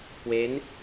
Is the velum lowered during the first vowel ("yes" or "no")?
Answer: no